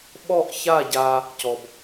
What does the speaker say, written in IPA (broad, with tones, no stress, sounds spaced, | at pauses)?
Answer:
ɓ ɔ˥˧ ʔ ç a˥˧ ɟ a˧ | c ɔ˧ b